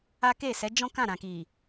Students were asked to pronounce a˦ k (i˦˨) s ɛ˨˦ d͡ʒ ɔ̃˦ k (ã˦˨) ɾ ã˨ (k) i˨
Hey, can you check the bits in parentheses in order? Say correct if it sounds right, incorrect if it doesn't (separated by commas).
incorrect, correct, correct